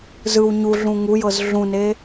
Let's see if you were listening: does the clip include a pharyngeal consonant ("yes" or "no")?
no